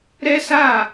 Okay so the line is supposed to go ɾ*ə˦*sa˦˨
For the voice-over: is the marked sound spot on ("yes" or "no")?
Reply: no